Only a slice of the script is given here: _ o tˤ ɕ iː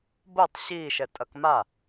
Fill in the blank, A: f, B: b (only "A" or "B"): B